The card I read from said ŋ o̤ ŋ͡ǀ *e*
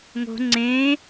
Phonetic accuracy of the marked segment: incorrect: ẽ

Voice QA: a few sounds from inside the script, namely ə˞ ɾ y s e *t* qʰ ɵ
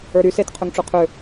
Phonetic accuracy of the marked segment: correct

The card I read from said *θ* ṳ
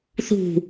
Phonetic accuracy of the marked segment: correct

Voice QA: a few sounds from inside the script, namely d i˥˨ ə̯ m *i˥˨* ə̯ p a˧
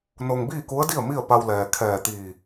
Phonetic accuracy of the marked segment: correct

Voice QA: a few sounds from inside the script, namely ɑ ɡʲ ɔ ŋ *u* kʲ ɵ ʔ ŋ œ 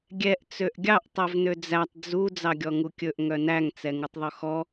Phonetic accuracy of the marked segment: correct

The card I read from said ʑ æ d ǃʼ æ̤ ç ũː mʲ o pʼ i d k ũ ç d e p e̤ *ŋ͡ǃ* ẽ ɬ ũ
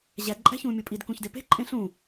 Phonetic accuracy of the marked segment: incorrect: ǃʼ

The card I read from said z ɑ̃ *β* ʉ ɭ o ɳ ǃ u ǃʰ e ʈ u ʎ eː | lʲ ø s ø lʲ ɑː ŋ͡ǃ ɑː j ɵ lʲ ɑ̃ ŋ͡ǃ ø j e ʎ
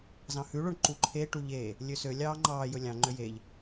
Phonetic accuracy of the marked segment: incorrect: h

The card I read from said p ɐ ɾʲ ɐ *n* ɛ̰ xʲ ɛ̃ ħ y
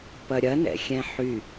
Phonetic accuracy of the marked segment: correct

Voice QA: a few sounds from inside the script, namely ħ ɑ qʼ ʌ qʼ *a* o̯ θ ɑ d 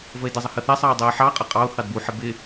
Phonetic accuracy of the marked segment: incorrect: ɑ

